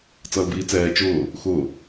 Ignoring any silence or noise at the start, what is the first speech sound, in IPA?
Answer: t͡s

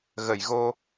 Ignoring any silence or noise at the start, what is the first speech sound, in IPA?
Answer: ɣ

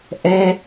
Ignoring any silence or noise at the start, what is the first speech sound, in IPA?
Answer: ʔ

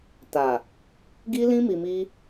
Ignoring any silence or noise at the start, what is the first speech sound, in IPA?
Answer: t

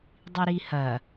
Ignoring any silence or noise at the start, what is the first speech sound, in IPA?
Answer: dˤ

